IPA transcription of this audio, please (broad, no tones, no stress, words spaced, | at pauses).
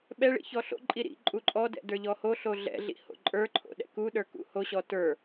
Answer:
ɓɛɭḭ çɔɬo̰ǃʼi ɾḭ ǃʼuǃʼɔdɛ̰ də˞ʎɔhoɬo ɮɛ̰ɮḭ ho̰ǃʼə˞ǃʰo̰ ɗɛ̰kuɗə˞ kṵhoɕɔ tə˞